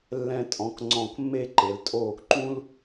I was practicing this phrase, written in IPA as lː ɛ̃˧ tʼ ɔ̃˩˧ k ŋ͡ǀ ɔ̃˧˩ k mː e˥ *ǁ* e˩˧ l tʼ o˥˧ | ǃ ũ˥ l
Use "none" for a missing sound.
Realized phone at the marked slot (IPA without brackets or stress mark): ǃ